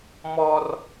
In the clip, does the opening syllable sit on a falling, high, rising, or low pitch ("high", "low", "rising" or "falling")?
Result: high